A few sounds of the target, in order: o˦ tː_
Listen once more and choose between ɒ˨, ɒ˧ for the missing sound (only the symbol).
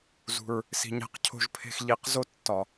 ɒ˨